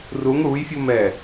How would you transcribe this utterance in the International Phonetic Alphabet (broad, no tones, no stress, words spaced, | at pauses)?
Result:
ruŋ ɽujfʲum ɛ